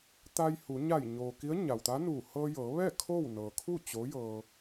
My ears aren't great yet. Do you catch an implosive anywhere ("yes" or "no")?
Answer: no